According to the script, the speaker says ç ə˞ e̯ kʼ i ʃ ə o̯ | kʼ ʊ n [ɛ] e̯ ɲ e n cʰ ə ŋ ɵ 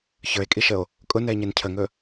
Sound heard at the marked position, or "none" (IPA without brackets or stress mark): ɛ